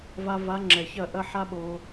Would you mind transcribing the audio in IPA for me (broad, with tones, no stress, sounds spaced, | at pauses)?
v a˧ v a˨˦ ŋ͡ǁ ɛ˨ ç ɐ˦˨ ʔ ɐ˦ ħ a˦ ɓ o˧